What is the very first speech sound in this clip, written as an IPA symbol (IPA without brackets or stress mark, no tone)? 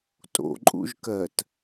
tʼ